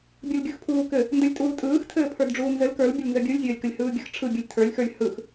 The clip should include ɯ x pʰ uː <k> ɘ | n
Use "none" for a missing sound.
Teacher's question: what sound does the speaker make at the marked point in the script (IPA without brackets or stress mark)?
k